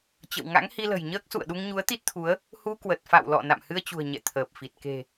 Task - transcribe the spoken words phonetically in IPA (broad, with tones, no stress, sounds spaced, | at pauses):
t͡ɕ ə̰˧˨ w ŋ a̰˧˥ ŋ h i˧ l ə̤˨˩ j ɲ əː˦˥ k̚ s ṵ˧˨ ə̯ ɗ u˧ ŋ ɲ u˨˦ ə̯ t̪ i˦˥ t̚ t̪ʰ u˨˦ ə̯ | h u˧ k w ə˨˩ t̚ f a̰˧˨ w l ɔ̰˧˨ n a̰˧˨ m h ɨ˧ ə̯ t͡ɕ ṳ˨˩ ə̯ ɲ ɛ̰˧˨ t̪ʰ əː˨˩ p̚ f i˨˩ t̚ k e̤˨˩